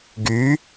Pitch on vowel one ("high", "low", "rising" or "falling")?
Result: rising